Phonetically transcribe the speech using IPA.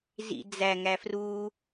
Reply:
z ḭ d͡z æ ŋ æ f r u

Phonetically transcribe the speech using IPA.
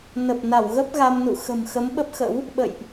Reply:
n ə˨˩ p̚ n a˧˩ w ɣ ə˦˥ p̚ ɣ a˧ m n ṵ˧˨ x ə̤˨˩ m x ə˨˦ m ɓ ə˦˥ p̚ x ə̰˧˥ w | ɓ ə̰˧˨ j ʔ

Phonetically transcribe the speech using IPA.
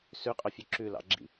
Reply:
s ʉ qʼ œ fʲ ʉ ǁ ʉ l ɑ̰ ɡ͡ǁ ḭ

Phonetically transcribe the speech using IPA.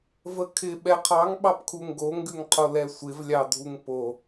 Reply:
v ə kʰ ɪ ɓ ɛ qʰ ɑ ŋ ɓ ɑ p kʰ u ŋ ɡ o ŋ ɡ ʉ ŋ qʰ o l ɛ sʷ ɪ v lʲ ɑ dʱ u ŋ p o

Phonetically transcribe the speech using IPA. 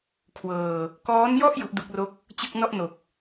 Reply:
kʰ w ɤː˧ | k ɔː˦˥ n j ɔ˥˩ ʔ j u˦˥ ʔ d u˦˥ k̚ r o˥˩ k̚ | t͡ɕ ɯ˥˩ k̚ n ɔ˥˩ ʔ n o˨˩ k̚

